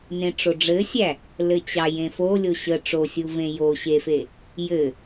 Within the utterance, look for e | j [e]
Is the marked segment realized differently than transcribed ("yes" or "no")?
yes